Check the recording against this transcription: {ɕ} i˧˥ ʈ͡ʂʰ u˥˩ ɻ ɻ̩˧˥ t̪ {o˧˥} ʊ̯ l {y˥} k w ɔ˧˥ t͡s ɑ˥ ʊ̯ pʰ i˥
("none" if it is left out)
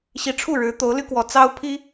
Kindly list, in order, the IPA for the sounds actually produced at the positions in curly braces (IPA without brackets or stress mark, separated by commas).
ɕ, o˧˥, y˥